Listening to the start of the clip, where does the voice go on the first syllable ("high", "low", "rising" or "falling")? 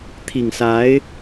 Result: low